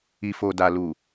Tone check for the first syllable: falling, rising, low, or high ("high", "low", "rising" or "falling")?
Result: low